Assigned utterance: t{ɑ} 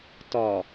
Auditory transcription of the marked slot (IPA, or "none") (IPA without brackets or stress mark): ɒ